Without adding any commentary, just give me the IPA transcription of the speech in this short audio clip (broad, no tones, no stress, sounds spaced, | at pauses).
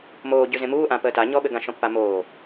m oː ɟ ʉ z ẽ m uː ʔ ã p əː t a ɲ ɔ ɓ ɘ ɡ ã ʃ ɔ̃ pː a m oː